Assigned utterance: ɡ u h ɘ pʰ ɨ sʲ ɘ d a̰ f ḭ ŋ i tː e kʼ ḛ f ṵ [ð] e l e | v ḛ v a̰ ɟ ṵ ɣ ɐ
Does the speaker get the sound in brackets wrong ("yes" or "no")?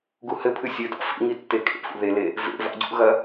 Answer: no